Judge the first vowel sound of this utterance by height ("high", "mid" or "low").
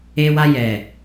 mid